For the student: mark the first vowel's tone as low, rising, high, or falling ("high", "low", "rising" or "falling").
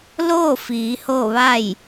falling